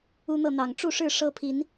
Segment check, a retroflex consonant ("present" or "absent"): present